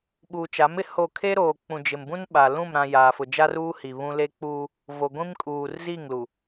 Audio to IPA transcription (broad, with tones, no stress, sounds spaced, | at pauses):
ɓ uː˨ t͡ʃ a˨˦ m ɪ˨ h o˦˨ kʰ e˦ ɾ oː˨ k͡p ũ˨ d͡ʒ ɪ˨ m b ũ˦ n ɓ a˨ l ũ˦˨ m ɾ ã˨ j aː˨ f ʊ˨ d͡ʒ a˦ r uː˦ h i˨ β ũ˦ l e˦ k͡p uː˦ | v o˨ ɡʷ ĩ˦ m kʼ uː˨ r z i˦˨ ŋ l u˨